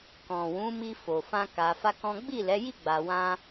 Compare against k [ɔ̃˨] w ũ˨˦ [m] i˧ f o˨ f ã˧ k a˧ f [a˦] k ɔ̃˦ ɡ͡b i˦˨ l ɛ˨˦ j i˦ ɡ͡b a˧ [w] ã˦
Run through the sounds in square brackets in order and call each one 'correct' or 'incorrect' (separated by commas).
correct, correct, correct, correct